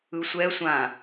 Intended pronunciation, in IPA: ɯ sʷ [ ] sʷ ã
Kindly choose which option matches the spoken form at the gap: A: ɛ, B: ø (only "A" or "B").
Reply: A